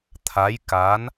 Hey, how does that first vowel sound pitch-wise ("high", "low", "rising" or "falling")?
rising